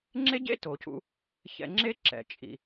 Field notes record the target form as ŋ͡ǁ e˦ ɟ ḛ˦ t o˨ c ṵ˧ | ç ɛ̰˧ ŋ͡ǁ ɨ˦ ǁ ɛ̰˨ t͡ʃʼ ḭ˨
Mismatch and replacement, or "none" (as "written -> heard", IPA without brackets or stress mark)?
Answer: ɨ˦ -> e˦